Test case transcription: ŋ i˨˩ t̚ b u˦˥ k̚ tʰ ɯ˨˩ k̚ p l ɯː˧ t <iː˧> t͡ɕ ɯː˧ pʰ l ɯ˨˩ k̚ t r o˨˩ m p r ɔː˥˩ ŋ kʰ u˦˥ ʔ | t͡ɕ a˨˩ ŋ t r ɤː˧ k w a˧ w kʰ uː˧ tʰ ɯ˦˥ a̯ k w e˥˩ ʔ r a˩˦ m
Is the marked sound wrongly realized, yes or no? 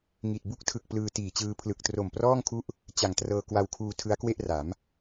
yes